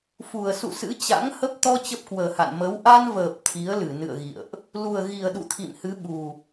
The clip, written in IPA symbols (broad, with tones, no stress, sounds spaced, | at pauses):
f u˨˩ ə̯ s ṵ˧˨ s ɨ̰˧˥ t͡ɕ a̰˧˥ ŋ h ə˦˥ p̚ t̪ ɔ˧ t͡ɕ ə˦˥ p̚ k w əː˨˩ h a̰˧˨ n m ə˨˦ w ʔ a˧ n v əː˨˩ p̚ t̪ʰ i˨˦ ə̯ l ɨ˧˩ n ɨ̰˧˨ ə̯ ɣ ḭ˧˨ ə̯ ʔ | l u˨˩ ə̯ ɣ i˨˩ ə̯ ɗ ṵ˧˨ t̪ʰ ḭ˧˨ m h ɨ˨˦ ɓ u˨˩